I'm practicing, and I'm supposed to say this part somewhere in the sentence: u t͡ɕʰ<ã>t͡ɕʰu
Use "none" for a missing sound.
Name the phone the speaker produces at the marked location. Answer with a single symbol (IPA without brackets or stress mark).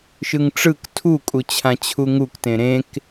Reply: ã